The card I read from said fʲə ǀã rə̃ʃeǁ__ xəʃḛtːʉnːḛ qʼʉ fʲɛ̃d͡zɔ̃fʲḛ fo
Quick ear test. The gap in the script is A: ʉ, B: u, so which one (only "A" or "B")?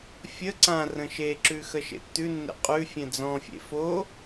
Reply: A